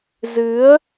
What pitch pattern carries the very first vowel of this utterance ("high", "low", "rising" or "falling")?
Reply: rising